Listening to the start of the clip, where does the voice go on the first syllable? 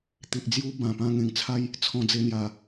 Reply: low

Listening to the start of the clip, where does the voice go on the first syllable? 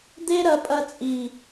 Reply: high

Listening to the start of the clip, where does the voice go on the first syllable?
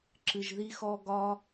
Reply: low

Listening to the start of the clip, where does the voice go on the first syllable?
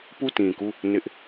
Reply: falling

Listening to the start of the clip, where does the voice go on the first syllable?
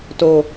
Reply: low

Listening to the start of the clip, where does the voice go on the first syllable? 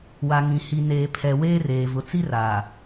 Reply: low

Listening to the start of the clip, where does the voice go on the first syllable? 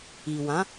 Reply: low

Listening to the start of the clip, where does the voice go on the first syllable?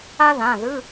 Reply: high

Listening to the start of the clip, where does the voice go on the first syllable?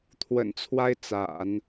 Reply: low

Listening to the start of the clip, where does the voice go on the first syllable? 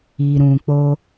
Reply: low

